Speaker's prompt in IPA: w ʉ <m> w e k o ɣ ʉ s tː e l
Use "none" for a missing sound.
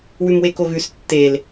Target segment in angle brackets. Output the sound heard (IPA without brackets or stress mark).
m